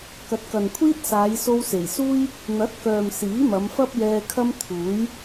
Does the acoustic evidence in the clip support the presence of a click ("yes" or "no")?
no